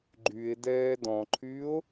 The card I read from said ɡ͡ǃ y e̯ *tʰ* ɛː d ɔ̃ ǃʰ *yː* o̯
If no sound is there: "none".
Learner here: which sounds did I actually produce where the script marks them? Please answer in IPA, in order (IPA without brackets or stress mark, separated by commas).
d, yː